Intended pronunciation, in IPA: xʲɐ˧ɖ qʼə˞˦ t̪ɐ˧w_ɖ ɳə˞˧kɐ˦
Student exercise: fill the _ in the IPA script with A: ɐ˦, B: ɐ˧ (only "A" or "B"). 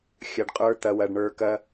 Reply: B